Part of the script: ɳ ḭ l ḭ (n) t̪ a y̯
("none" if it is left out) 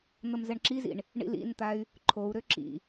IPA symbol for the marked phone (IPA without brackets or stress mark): n